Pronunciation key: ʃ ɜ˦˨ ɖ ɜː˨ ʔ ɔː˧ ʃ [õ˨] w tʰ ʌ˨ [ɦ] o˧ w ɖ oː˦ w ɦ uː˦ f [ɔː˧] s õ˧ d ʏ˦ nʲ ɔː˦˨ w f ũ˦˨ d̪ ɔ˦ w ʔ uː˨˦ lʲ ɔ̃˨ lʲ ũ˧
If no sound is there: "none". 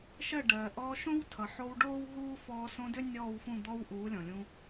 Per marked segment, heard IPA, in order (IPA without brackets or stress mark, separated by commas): õ˦, ħ, ɔː˧